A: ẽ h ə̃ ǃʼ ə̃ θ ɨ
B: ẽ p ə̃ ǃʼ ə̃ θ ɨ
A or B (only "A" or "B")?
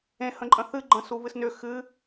A